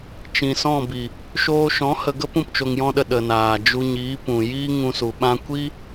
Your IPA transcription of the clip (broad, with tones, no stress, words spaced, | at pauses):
t͡ʃĩ˨ sɔ̃˦˨bi˨ | ʃoː˧ʃɔ̃˨˦ hə˧ɡə˦pũ˧p t͡ʃo˧ŋjɔ̃˦ɗə˧ ɗə˨naː˨ d͡ʒu˧ɲiː˨˦ pũ˨ jiː˦ŋũ˧su˨ɓã˦ kʷi˦